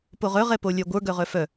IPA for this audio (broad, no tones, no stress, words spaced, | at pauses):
poʁœʁ ɛpolʲœɡʷə˞ ɡœʁœfœ